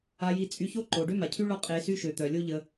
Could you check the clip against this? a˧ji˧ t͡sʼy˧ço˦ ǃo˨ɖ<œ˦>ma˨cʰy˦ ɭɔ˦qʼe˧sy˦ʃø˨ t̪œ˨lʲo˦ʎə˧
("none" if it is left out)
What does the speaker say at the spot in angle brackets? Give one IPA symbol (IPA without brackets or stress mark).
ø˦